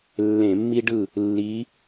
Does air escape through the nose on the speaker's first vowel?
yes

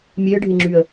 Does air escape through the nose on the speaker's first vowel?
no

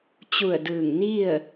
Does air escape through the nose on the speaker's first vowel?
no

